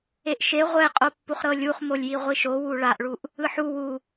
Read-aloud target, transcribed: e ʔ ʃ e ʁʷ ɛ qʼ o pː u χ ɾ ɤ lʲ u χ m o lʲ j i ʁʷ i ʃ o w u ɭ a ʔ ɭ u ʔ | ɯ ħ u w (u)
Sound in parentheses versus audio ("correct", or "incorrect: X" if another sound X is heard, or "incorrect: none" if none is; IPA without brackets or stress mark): correct